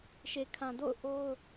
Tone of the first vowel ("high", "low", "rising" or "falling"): low